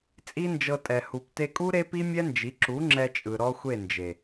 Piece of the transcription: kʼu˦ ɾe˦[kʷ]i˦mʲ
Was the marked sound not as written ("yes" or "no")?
yes